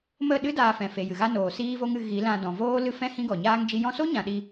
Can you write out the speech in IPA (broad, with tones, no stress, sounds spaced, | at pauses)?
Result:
m ə˦˨ ɗ ɨ˦ d aː˧ f ɛ̃˨ f e˨ j ɨ˨ ɣ a˦ n oː˨ s iː˦ v o˦ ŋ ɨ˧ ɣ i˨˦ l ã˧ d ɔ̃˨ v oː˦ l ɨ˦ f ɛ̃˦ h ĩ˦ ɡ ɔ˨ ɲ aː˦ ŋ d͡ʒ i˦ j ɔ̃˧ s o˦ ɲ ã˨ ɗ i˧